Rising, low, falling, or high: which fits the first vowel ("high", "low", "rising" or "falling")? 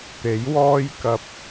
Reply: rising